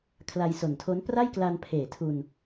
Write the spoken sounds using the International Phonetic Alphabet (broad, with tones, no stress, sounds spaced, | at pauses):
kʰ l a˧ j s o˨˩ n tʰ o˦˥ n p r a˥˩ j k l a˧ n pʰ eː˨˩ tʰ u˧ n